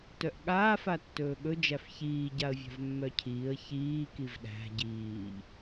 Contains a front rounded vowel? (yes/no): yes